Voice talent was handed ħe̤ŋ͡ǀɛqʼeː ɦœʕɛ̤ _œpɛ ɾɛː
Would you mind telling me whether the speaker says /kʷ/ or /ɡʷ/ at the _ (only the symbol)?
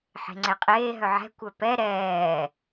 kʷ